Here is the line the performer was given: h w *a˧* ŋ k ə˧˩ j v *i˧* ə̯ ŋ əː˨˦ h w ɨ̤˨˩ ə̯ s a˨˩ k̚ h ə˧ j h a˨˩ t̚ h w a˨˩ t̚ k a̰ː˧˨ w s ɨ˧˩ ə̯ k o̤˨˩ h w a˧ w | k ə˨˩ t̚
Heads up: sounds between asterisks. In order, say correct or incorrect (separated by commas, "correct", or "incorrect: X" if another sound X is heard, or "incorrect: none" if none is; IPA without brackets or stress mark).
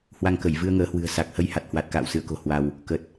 correct, incorrect: ɨ˧